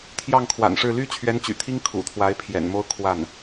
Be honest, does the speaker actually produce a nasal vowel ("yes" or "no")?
no